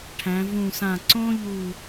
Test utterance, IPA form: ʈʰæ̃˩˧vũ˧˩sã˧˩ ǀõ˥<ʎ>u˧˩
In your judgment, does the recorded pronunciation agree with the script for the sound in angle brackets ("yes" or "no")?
yes